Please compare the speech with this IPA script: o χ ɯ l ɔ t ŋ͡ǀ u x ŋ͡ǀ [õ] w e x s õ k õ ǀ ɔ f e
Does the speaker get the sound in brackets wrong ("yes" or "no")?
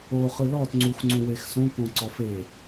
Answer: yes